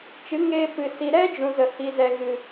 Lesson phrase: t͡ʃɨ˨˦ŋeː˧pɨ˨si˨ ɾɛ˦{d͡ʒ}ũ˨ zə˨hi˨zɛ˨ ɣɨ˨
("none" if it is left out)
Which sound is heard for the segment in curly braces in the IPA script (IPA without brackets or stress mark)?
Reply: d͡ʒ